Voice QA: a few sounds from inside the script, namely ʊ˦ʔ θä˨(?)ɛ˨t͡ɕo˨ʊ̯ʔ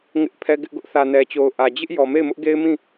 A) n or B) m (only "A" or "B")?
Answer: A